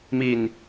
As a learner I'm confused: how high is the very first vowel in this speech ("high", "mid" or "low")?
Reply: high